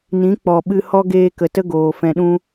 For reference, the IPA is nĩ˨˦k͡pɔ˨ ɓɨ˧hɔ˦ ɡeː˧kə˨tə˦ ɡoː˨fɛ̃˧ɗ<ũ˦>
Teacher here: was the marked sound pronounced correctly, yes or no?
yes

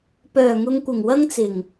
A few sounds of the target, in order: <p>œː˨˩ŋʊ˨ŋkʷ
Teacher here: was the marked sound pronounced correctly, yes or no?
yes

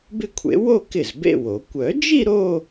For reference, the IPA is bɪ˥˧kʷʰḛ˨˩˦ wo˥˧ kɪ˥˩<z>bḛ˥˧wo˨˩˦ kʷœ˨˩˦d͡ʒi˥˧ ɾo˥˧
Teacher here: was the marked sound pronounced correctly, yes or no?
yes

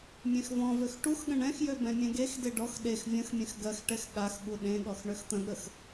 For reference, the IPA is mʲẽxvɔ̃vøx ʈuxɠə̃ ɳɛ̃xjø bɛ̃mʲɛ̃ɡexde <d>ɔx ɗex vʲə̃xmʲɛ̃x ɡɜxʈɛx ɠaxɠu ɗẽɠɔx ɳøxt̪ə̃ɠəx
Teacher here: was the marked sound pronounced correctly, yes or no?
no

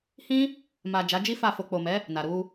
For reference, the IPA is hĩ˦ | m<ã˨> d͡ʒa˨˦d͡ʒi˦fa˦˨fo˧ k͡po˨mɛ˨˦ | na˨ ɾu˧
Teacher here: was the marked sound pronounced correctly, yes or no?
no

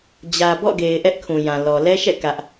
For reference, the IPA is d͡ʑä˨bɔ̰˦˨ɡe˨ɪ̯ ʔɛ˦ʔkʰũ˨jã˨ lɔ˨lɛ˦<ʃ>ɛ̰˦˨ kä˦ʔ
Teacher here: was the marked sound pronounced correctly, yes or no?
yes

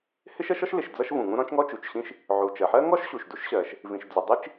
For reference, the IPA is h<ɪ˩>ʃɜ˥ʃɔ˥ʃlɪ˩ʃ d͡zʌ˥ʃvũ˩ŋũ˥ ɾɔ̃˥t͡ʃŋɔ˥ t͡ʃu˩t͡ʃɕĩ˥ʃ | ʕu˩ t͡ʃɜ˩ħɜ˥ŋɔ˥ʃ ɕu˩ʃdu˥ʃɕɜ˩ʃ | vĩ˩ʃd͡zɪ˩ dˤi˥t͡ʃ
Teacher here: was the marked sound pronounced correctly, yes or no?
no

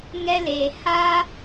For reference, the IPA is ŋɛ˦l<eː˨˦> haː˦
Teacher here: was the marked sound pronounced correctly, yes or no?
no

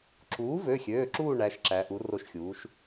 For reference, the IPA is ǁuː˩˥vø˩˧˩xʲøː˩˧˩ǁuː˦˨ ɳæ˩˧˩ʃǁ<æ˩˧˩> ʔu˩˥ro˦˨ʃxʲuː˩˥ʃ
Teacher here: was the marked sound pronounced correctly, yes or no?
no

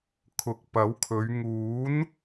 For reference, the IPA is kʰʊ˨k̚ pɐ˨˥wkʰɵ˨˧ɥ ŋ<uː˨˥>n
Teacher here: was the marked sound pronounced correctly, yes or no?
yes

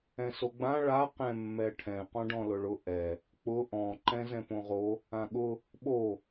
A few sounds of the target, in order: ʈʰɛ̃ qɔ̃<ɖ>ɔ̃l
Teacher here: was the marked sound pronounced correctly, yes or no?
yes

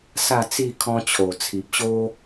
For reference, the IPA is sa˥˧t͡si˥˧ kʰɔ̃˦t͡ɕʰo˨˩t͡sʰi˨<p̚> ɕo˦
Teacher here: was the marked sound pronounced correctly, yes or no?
yes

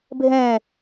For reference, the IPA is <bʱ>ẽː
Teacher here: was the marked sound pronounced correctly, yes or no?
yes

